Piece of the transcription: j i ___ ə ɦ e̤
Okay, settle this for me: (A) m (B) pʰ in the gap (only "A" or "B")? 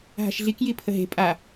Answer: B